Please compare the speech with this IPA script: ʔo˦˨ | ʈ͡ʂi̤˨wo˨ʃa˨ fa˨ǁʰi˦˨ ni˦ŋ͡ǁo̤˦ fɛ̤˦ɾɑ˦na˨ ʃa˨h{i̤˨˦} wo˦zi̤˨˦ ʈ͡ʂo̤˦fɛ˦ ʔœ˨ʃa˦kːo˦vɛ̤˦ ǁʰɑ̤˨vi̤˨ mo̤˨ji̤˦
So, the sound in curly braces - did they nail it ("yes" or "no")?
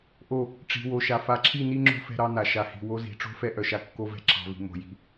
no